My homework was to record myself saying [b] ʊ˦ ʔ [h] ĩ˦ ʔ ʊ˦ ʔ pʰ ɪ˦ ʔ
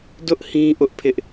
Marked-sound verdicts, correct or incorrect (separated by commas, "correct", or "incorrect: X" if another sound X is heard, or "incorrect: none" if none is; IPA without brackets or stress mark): incorrect: d, correct